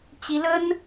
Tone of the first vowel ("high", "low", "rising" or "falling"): high